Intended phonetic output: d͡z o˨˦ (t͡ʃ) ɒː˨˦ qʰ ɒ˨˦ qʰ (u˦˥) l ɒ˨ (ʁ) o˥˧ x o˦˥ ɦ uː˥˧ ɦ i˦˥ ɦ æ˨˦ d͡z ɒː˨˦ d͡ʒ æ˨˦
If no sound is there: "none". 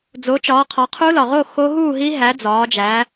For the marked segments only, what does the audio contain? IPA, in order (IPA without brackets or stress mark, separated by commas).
t͡ʃ, u˦˥, ʁ